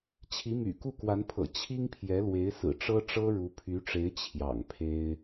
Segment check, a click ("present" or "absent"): absent